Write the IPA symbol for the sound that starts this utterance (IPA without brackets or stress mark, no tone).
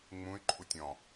ŋ͡m